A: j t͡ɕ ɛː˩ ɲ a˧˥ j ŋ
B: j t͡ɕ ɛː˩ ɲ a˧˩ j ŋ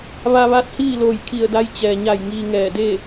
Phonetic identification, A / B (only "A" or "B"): B